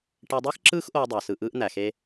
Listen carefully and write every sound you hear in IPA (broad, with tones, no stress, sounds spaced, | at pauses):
ʈ e˧ dˤ ɯː˦ x ǁ ɯː˦ x ʔ oː˧ dˤ æ˨ s ɯ˨ ʔ ɯː˧ ʔ n̪ æ˨ x e˦